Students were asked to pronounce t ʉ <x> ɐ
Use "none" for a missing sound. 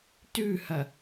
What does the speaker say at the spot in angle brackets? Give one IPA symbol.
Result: h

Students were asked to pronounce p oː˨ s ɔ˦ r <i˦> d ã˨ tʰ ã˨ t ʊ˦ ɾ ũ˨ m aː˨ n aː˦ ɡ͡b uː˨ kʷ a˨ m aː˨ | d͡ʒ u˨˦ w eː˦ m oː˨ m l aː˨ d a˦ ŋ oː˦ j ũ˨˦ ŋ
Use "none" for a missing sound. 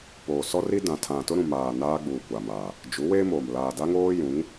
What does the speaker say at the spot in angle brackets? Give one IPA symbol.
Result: i˦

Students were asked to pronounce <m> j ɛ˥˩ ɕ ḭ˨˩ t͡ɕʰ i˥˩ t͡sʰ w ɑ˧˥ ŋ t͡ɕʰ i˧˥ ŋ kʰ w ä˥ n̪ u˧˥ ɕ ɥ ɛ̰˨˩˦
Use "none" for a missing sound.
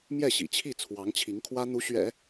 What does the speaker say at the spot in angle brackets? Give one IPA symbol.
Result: m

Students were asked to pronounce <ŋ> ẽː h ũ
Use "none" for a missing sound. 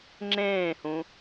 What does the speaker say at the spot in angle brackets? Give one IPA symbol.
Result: ŋ͡ǁ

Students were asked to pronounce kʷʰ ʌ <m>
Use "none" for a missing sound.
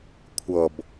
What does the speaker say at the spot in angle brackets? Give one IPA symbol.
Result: b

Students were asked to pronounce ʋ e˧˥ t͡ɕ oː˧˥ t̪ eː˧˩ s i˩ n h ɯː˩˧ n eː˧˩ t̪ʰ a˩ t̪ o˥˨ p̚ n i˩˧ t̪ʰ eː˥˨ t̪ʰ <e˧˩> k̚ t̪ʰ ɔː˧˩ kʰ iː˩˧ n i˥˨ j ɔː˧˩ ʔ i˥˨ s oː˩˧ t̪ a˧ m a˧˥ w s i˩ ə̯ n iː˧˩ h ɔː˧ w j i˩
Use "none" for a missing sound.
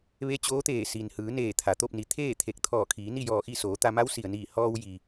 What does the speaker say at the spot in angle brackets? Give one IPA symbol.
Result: e˧˩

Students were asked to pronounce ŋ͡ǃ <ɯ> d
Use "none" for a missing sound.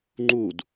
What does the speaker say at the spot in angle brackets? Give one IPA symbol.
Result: u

